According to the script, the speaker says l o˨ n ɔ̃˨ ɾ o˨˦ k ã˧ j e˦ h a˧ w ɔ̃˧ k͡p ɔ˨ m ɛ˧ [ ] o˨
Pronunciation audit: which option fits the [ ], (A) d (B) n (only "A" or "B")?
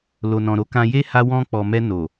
B